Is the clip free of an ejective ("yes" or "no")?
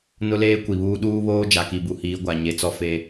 yes